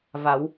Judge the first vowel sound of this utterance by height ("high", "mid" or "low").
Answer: low